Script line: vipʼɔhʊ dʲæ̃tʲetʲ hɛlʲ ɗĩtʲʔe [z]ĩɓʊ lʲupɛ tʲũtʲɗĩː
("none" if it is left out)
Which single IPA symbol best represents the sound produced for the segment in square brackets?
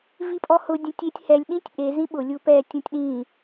z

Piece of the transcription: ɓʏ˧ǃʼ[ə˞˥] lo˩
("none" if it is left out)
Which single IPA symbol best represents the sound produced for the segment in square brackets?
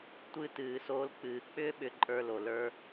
ə˞˧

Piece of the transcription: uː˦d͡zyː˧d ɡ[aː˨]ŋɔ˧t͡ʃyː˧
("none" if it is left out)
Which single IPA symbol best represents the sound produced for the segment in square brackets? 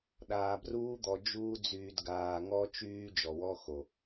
aː˨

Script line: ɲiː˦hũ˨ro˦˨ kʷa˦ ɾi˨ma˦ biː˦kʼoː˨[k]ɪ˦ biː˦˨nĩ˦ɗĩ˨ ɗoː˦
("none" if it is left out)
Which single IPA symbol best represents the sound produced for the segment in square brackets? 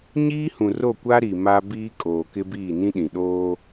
k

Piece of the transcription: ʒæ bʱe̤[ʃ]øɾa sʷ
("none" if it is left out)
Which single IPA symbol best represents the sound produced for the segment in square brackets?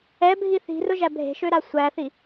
ʃ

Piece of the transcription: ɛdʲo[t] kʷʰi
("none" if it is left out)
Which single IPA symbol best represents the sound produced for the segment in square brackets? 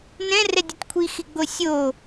t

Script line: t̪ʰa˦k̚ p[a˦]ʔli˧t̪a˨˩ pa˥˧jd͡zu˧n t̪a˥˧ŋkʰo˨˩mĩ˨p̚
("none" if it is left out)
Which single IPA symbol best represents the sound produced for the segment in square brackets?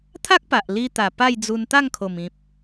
a˨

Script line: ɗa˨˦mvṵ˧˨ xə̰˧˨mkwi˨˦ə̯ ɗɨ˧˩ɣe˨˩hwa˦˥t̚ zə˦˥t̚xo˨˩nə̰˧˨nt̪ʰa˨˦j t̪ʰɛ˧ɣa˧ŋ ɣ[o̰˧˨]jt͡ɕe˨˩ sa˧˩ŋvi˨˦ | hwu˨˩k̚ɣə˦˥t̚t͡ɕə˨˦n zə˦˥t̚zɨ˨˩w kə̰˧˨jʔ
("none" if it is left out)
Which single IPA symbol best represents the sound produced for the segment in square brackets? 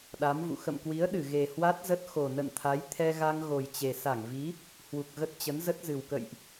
o˨˩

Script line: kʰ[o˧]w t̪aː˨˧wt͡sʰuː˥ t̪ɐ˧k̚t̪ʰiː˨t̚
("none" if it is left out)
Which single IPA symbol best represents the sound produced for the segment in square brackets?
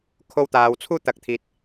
o˧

